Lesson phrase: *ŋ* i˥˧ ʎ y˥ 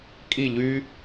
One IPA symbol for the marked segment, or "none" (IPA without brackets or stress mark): kʼ